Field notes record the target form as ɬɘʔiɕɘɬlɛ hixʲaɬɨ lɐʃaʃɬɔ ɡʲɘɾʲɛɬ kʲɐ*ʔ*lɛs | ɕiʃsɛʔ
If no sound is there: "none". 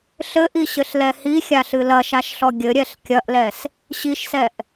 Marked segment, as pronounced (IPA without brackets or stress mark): ʔ